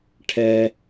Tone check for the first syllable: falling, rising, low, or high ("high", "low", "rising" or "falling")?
high